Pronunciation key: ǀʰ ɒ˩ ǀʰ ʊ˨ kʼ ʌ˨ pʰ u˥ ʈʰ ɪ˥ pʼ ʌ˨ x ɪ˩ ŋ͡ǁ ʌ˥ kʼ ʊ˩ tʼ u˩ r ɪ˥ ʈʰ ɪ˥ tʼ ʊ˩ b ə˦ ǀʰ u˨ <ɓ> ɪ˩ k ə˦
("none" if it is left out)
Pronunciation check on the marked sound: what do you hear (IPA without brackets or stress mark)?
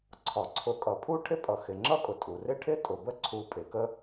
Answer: pʼ